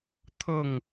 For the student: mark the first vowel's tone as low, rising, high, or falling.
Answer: falling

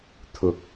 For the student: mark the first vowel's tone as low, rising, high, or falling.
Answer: low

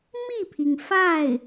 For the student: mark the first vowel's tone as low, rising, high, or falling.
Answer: falling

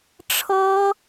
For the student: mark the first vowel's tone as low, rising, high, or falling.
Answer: high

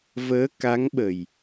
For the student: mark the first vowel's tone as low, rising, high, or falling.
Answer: rising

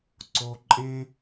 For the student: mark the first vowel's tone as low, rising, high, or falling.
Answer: low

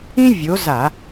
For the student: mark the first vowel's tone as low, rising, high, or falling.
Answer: high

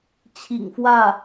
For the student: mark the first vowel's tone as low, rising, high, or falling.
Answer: low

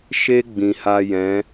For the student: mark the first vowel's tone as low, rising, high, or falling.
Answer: high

